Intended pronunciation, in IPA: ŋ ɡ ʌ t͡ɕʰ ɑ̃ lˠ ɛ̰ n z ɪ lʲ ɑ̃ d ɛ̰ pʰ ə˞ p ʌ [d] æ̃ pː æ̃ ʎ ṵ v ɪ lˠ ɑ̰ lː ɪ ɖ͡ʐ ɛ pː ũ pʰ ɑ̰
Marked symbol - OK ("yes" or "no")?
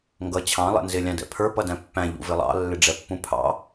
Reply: yes